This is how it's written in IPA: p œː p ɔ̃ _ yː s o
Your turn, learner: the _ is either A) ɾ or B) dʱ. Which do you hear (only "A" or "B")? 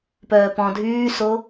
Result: B